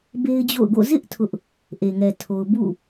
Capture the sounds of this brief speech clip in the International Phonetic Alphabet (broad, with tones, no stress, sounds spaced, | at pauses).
b e˦ ɪ̯ d͡ʑ o̰˦˨ ʊ̯ ɡ o̰˦˨ z ɪ˦ ʔ tʰ ʊ˦ ʔ | ʔ e˨ ŋ ɛ˨ tʰ o˨ ʊ̯ b ṵ˦˨